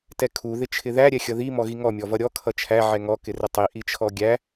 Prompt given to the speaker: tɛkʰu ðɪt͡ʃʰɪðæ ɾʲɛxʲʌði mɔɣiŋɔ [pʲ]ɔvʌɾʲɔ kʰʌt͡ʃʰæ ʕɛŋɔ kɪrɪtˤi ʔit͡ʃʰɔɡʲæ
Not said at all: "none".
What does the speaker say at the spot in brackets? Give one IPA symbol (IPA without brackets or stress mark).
mʲ